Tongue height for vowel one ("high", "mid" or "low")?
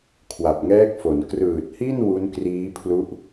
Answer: low